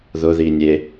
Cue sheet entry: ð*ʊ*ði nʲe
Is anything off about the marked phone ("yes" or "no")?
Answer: no